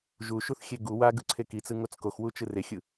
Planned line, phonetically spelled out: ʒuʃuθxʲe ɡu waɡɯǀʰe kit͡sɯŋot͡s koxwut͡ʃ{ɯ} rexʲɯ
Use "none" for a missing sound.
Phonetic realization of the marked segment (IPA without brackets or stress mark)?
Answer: ɯ